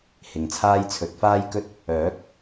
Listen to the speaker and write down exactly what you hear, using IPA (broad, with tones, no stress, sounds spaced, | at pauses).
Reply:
h ɪ˨ ŋ t͡sʰ aː˥ j t͡sʰ ɵ˨˥ t̚ f aː˥ j k ɵ˥ t̚ | œː˨˥ k̚